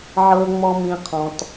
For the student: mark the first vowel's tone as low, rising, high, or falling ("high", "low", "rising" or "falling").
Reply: high